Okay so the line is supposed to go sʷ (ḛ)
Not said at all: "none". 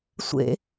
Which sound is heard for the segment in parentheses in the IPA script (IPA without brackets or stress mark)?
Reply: ḛ